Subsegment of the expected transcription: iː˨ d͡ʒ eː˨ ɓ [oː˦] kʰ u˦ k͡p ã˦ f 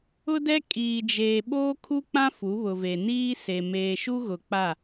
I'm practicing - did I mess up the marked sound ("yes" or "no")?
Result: no